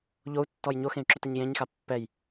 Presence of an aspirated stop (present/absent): absent